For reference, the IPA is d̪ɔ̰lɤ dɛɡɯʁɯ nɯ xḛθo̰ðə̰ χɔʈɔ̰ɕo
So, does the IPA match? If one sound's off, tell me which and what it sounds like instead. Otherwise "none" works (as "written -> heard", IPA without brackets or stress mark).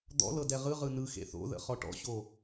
ɡ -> ʁ